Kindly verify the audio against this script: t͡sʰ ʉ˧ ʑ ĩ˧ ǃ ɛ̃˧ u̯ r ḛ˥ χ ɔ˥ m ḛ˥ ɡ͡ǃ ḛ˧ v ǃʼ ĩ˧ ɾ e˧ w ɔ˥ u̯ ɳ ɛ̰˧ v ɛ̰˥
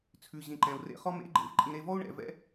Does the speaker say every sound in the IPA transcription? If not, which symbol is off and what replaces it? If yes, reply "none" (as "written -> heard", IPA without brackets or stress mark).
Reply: w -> v